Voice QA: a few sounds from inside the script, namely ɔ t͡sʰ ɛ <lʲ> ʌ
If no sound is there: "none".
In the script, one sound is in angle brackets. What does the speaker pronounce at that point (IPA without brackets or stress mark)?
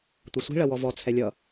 lʲ